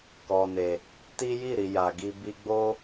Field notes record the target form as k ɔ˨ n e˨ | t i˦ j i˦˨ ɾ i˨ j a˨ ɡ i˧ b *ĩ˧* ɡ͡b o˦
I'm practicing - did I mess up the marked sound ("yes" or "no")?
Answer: yes